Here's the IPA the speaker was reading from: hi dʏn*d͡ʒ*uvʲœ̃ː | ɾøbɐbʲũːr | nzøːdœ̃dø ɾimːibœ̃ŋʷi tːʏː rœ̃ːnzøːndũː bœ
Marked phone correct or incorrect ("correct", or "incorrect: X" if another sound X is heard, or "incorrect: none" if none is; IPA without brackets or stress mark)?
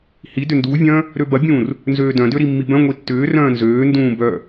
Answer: incorrect: d